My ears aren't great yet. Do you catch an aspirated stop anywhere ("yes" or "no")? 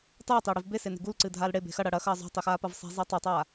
no